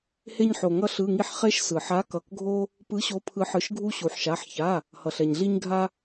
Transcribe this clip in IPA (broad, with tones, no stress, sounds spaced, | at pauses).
h e˧ ɲ ħ o˩ ŋ ʌ˧ ɬ ɯ˩˧˩ ŋ i˧ ħ χ e˧ ʃ s ɯ˩ ħ a˨˥ k ʌ˩˧˩ k ɡʱ o˧ | p ɯ˨˥ ɕ o˨˥ pʰ ɯ˨˥ ħ ɯ˩˧˩ ʃ ɡʱ u˧ ɕ u˩ ħ ʃ a˩˧˩ ħ ç a˩˧˩ | h ʌ˩ ɬ ɛ˩ ɲ ɮ i˧ ɲ ɡʱ a˧